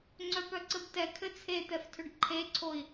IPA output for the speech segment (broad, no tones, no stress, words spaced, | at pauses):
ŋ͡ǀœpœǀɘbtɛ kʰɘt͡sʰet̪ɛftʰʏɖ ǃʰeǀʰoi̯